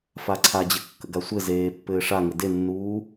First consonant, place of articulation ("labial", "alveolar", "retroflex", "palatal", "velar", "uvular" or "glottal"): labial